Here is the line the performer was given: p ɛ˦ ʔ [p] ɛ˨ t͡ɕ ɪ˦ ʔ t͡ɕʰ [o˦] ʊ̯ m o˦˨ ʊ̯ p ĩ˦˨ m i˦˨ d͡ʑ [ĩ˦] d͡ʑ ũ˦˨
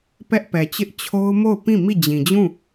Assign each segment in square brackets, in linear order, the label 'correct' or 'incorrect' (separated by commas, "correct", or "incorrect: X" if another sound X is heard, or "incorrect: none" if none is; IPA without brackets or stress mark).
correct, correct, incorrect: ĩ˨